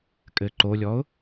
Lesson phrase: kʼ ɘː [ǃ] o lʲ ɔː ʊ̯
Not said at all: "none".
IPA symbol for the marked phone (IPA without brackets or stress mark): ǃ